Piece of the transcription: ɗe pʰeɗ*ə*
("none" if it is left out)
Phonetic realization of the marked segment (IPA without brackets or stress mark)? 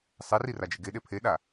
a